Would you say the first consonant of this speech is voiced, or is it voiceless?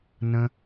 voiced